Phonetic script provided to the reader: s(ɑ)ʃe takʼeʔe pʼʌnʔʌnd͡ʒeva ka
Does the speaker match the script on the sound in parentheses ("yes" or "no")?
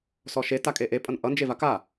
no